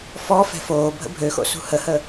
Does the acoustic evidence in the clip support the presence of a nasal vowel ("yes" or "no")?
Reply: no